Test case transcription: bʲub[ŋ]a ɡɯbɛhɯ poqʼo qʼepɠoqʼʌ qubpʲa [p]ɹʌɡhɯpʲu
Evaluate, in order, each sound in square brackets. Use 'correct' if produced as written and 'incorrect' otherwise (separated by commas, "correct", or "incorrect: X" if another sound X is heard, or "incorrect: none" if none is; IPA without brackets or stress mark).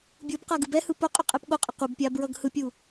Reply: incorrect: q, incorrect: b